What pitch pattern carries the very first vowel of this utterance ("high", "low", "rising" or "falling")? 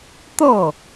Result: falling